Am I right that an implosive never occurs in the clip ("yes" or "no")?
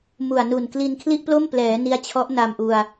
yes